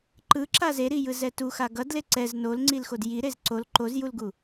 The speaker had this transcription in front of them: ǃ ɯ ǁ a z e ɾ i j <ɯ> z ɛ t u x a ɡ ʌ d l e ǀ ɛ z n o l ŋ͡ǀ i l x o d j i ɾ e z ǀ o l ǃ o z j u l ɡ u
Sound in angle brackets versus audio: correct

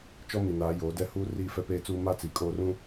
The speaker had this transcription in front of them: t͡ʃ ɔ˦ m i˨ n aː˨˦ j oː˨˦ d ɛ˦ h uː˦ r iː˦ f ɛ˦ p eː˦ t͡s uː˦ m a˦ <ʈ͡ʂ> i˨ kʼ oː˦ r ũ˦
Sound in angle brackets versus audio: incorrect: t͡s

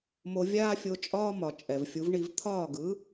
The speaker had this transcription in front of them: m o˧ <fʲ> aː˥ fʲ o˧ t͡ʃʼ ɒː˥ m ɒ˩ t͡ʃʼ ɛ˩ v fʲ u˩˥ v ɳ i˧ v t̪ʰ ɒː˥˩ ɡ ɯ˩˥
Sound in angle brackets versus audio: incorrect: vʲ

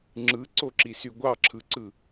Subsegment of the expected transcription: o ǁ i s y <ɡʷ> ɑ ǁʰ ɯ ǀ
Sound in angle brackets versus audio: correct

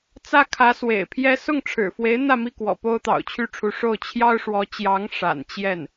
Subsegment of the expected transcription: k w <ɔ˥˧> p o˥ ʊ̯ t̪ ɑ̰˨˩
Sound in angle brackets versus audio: incorrect: ɔ̰˨˩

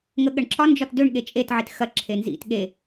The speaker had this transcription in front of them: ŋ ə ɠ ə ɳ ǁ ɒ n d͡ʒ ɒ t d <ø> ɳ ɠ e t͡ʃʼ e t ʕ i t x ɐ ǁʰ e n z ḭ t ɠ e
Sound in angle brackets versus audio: correct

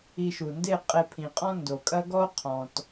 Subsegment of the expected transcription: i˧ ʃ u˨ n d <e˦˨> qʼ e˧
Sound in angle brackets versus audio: correct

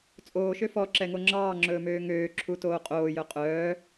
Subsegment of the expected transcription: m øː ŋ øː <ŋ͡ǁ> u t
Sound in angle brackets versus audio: incorrect: ǁʰ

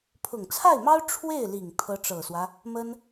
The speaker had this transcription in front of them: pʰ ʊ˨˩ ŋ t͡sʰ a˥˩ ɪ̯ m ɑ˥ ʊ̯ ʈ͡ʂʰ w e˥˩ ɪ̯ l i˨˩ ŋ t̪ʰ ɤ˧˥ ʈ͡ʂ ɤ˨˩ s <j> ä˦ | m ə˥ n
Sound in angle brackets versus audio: incorrect: w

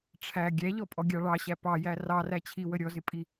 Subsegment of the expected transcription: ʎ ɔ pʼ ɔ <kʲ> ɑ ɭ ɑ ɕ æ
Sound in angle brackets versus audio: incorrect: ɡʲ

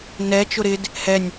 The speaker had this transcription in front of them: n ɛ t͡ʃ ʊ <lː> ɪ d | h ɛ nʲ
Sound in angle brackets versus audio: incorrect: ɾ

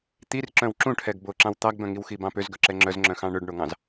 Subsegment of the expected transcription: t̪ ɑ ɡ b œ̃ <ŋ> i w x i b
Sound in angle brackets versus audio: correct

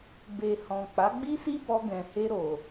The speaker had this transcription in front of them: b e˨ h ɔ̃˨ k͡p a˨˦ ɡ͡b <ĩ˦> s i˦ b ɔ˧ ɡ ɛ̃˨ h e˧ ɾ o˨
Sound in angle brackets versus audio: incorrect: i˦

